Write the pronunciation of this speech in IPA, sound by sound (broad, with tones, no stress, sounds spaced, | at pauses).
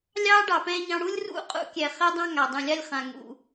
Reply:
lʲ ɑː˦ ɖ ɑ˨ p ɛ̃ː˧ ɲ ɑ̃˧ ɽ u˦ lʲ r ṵ˦˨ qʼ ṵ˦ kʲ ɛ˨ χ ɛ˦ dˤ ɑ̃˦ ŋ a˨ dˤ ũ˨ lʲ a˦ lʲ χ ã˨ ŋ ṵ˨